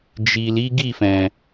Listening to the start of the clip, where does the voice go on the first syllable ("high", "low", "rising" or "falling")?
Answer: low